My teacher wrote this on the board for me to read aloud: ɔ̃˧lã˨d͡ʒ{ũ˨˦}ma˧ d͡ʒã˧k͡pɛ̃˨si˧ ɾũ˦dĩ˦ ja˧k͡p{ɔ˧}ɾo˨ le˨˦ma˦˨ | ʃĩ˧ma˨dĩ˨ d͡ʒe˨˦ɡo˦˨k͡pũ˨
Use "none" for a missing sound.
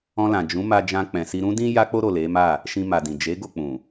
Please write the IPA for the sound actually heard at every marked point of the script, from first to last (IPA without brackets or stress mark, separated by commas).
ũ˨˦, o˧